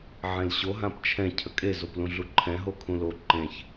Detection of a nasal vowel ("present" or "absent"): present